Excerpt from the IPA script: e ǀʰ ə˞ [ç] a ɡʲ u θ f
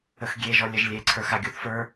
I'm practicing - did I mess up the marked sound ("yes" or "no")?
yes